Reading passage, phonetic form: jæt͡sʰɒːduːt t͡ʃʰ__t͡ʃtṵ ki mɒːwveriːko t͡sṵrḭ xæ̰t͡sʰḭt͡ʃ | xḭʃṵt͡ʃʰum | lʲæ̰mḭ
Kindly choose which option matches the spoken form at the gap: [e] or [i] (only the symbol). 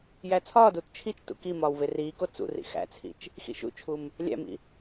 i